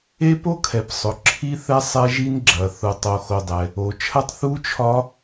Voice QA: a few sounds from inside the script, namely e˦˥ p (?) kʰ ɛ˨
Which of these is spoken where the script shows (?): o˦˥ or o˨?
o˦˥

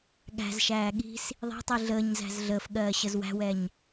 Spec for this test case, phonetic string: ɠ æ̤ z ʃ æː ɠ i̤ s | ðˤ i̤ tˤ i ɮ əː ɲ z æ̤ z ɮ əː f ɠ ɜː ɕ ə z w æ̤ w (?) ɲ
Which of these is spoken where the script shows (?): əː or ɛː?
ɛː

